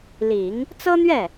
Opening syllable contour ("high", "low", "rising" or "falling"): low